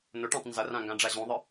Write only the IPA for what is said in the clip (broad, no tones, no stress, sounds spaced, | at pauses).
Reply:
n o ʈ ã tˤ n z ʌ r ã ŋ ɡ ã ɖ͡ʐ a ʑ ũ ðˤ ɯ